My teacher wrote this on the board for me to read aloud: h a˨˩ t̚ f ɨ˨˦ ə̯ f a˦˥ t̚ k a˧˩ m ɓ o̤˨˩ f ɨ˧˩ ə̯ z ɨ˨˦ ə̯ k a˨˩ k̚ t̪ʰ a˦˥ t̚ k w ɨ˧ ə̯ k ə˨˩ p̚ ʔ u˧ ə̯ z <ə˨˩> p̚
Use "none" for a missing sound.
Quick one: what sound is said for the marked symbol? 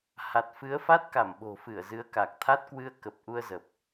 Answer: ə˨˩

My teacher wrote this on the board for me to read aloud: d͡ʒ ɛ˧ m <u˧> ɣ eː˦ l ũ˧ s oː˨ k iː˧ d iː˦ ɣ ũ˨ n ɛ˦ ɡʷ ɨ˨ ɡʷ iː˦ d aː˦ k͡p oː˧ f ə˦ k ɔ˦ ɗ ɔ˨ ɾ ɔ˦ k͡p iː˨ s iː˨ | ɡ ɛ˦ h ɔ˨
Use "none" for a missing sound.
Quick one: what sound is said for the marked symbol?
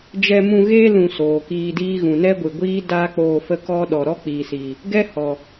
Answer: ũ˧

